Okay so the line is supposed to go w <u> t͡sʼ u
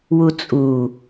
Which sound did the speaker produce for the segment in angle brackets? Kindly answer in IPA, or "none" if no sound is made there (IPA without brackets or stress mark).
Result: u